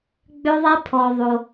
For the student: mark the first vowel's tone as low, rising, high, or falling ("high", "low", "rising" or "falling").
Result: high